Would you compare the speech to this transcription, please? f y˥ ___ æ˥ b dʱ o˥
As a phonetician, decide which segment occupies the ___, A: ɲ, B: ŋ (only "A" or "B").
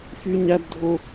A